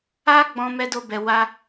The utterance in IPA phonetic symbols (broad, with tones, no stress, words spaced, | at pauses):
a˦ɡ͡bɔ̃˧ mɛ˧do˧bɛ˨wa˧